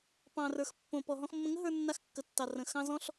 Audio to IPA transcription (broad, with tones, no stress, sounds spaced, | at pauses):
p ɑ̃˨ r ə˞˨ x pː õ˨ p ɔ˨ ɦ ɔ̃˧ x mː ə̃˧ ŋ ə˦ ɦ ə˞˧ nː a˧ x kː ə˨ tː ɑ˨ r ə̃˨ x ɑ̃˧ z ɔ̃˧ ɬ